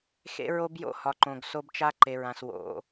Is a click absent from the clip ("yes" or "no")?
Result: no